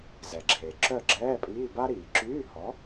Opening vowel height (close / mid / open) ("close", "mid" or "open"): mid